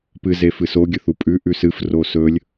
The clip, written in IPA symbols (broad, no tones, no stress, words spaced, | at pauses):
pɨzefɨ soɡʲɵ θupʼʉʔʉ sɨf rosɵlʲ